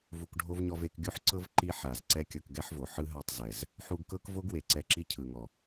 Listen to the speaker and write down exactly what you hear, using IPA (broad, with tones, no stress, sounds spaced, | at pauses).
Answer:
v u˧ k ɖʱ o˦ v ɲ ɔ˧ v e˧ k ɡʲ u˦ ħ ǀ ɤ˦ v ǃ i˦ ħ a˨ z ǀ ɛ˦ kʲ ɤ˧ k ɡ ɛ˦ ħ v o˨ ħ ɯ˦ ɦ a˦˨ tˤ z ɛ˨ z | ħ u˧ ɡ k ɤ˦ k v o˦ ɡ w e˨ ǀ ɛ˧ ǁ i˦ cʰ ɯ˨ ŋ ɔ˨